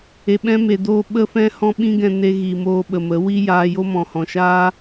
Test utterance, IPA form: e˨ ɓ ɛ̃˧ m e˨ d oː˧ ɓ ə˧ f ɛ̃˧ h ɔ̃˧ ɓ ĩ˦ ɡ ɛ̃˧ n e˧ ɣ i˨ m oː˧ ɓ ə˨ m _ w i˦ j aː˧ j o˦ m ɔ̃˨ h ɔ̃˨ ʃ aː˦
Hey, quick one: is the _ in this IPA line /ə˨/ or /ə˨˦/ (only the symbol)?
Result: ə˨˦